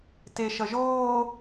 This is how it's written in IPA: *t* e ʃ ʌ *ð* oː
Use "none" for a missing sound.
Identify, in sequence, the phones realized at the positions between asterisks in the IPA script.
t, ʒ

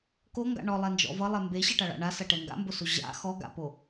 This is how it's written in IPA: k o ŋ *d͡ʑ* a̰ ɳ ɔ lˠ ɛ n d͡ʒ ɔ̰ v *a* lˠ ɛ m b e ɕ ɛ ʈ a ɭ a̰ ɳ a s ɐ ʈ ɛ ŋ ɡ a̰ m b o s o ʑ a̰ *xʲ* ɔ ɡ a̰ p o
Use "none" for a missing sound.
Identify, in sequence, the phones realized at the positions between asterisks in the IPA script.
ɡ, ʌ, x

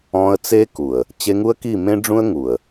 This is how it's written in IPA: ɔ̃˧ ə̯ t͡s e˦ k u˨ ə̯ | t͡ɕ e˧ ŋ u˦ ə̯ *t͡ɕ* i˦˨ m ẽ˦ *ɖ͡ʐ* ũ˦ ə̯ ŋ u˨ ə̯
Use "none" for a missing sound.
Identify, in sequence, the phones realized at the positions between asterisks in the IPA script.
k, ɖ͡ʐ

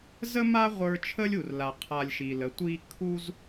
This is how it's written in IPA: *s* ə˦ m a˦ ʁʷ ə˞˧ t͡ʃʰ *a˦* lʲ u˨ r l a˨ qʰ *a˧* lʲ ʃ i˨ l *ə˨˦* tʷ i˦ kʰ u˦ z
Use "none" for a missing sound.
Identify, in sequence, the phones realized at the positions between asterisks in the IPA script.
z, ə˦, a˧, ə˨˦

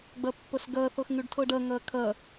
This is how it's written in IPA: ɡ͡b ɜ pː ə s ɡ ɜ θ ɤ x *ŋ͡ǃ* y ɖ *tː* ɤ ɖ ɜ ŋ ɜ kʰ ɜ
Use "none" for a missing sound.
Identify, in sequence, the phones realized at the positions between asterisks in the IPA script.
ŋ, tʰ

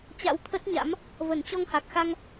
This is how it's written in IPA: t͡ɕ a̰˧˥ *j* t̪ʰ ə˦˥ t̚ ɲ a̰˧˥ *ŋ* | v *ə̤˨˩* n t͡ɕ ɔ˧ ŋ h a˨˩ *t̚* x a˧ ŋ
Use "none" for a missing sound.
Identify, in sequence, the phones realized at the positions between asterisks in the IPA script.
w, m, ə˧˩, k̚

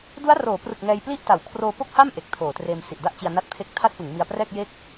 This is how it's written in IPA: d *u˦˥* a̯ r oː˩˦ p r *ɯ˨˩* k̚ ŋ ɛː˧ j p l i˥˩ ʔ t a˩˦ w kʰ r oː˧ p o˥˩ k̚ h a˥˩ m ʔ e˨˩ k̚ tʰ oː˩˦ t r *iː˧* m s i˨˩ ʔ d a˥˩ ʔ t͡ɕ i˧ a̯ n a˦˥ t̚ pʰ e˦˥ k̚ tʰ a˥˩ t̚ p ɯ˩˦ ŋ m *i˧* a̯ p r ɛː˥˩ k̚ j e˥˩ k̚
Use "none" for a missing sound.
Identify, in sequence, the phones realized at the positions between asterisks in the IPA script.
u˦˥, ɯ˨˩, eː˧, i˧

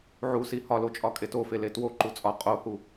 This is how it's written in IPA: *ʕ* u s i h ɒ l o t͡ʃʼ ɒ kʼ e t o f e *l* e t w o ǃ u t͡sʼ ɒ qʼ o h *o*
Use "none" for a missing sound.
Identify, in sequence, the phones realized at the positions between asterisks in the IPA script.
ʕ, l, u

